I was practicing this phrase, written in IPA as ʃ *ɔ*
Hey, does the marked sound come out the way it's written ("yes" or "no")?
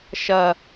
no